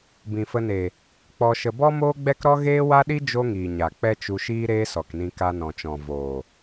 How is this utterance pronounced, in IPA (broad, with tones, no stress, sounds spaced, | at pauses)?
b ĩ˨ f ə˧ n e˨ | k͡p ɔ˧ ʃ ə˧ b ɔ˦ m oː˦ ɡ͡b ɛ˦ k ɾ ɔ˦ ɣ eː˦ w a˦ ɗ i˦ d͡ʒ o˦ ŋ iː˨ ɲ a˨ k͡p ɛ˦ t͡ʃ u˧ ʃ iː˦ ɾ eː˦ s ɔ˨ k n ĩ˧ k a˧ n ɔ̃˨ t͡ʃ ɔ̃˨ v oː˨